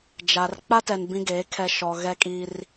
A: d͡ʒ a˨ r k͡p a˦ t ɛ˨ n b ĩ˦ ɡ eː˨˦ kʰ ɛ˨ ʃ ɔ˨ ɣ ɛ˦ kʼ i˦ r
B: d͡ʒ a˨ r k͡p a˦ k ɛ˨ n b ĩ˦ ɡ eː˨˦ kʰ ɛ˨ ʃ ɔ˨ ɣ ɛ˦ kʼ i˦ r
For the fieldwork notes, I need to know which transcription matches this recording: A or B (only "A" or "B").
A